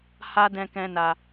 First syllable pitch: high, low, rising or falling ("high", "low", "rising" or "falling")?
high